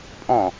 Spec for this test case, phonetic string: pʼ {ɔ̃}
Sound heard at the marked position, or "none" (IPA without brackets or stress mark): ɔ̃